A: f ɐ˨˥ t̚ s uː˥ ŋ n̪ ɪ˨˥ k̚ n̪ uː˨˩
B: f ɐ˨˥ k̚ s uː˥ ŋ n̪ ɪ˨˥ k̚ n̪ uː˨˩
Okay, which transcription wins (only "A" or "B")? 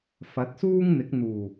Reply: A